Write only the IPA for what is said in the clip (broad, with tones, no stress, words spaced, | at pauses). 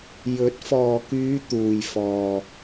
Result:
jɵ˨˥t̚fɔː˨kyː˨˧ t̪uː˨j fɔː˨